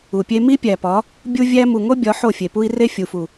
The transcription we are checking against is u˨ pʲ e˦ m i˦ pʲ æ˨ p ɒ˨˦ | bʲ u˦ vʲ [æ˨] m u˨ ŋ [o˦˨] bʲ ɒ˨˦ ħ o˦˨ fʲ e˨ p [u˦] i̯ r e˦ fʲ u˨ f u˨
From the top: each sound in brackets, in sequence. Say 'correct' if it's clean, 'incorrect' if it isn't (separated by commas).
incorrect, incorrect, correct